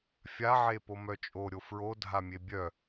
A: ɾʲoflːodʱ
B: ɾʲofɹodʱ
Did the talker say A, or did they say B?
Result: B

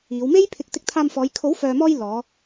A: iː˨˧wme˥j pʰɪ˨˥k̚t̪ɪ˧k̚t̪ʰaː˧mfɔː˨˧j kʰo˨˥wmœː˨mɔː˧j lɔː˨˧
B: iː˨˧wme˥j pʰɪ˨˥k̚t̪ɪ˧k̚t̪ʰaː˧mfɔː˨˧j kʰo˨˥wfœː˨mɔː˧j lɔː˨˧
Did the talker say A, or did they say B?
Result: B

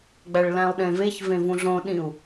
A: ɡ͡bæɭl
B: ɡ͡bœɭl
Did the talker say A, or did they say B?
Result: A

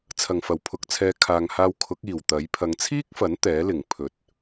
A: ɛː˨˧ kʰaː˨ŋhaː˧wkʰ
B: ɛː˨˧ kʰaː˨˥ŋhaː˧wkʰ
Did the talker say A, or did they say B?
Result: A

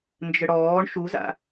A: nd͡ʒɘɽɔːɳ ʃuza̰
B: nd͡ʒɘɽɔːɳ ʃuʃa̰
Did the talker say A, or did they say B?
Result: A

